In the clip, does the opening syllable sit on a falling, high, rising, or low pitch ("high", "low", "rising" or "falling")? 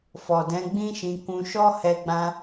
low